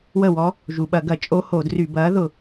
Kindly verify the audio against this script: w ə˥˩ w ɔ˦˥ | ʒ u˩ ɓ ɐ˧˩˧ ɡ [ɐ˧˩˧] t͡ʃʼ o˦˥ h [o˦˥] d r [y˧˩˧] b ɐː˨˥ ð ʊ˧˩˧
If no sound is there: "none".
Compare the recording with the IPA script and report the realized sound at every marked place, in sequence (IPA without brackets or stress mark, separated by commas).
ɐ˧˩˧, o˧˩˧, y˧˩˧